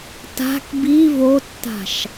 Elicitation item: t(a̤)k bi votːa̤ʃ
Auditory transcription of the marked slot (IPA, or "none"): a̤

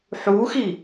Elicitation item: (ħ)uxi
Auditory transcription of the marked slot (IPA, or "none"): ħ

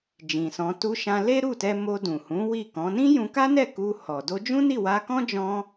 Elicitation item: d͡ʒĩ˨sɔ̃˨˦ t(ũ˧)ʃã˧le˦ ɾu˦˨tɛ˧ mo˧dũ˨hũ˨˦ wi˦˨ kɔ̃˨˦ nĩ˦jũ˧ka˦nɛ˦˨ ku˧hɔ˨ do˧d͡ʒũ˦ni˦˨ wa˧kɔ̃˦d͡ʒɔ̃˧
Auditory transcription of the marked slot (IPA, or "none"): u˧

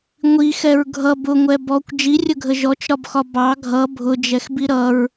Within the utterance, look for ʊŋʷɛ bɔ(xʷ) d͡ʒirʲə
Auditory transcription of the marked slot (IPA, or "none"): kʷ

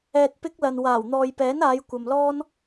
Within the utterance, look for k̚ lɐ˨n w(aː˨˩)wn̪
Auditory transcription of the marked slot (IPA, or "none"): aː˨˩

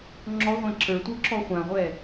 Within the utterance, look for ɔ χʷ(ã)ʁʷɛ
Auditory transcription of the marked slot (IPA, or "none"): ã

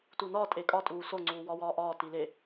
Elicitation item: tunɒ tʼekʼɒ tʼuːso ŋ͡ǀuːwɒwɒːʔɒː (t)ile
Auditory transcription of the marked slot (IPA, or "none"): t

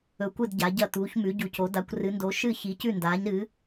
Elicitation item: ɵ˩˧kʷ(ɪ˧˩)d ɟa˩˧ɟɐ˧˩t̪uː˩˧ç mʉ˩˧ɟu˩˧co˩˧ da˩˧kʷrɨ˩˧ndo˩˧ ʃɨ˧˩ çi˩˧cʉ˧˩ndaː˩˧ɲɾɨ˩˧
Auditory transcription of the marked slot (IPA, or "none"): ɨ˧˩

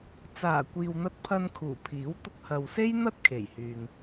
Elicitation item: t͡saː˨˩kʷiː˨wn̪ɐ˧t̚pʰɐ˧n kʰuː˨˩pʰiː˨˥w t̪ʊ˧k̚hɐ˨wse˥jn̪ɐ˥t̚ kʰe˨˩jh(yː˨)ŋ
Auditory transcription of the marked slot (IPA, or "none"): yː˨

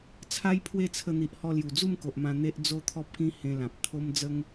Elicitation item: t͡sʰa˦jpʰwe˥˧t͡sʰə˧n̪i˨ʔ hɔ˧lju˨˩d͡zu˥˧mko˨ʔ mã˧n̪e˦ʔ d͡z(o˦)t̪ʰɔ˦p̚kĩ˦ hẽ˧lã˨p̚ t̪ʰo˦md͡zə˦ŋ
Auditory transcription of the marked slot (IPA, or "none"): o˦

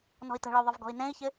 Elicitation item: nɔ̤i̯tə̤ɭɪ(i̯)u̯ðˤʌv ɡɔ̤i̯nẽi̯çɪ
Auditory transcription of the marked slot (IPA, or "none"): none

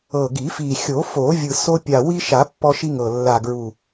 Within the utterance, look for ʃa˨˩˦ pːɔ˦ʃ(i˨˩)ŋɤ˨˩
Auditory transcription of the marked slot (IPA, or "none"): i˦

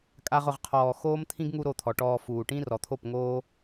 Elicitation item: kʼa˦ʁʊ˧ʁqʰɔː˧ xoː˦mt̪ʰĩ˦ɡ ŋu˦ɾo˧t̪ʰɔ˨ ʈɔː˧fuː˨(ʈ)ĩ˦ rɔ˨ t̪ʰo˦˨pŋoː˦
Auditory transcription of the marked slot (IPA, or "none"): ʈ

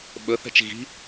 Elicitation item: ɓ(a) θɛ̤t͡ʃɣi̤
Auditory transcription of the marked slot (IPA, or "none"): ə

